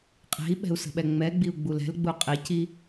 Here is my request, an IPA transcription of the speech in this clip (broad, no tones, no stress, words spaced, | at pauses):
qʼe̤i̯ɓɛ̤u̯ sə̤ɓɛŋ͡mɛɡ͡biu̯ ɡ͡bulɛ̤lɡ͡bu qʼeci